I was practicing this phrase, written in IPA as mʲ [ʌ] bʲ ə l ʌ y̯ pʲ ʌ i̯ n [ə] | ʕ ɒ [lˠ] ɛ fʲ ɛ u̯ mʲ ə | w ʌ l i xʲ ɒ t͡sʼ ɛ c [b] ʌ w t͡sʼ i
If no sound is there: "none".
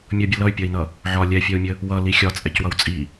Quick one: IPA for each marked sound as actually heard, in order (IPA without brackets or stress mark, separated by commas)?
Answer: ʌ, ʌ, lʲ, w